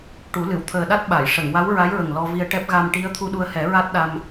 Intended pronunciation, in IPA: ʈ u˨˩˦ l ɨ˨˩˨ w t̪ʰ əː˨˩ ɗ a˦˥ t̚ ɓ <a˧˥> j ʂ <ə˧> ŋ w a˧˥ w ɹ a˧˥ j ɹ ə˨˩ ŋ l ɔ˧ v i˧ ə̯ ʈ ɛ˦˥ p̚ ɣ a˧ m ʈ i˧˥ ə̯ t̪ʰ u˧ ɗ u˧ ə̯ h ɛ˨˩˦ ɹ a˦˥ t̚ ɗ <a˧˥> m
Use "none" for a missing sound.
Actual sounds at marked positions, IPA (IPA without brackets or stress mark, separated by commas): a˨˩˨, ə˨˩˨, a˧